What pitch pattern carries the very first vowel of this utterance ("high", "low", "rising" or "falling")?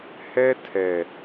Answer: high